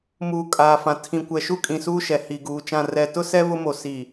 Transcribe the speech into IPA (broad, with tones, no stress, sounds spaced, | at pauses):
m uː˨ kʼ aː˨ f ã˨ tʰ ĩ˨ kʷ ɛ˨ ʃ u˦ kʼ ĩ˨ s uː˦ ʃ ɛ˨ h i˨ ɡ uː˨ t͡ʃ ã˦˨ r ɛ˨ t ʊ˦ s ɛ˦ β ʊ˦ m o˨ s i˨